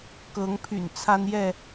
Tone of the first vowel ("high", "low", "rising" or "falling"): rising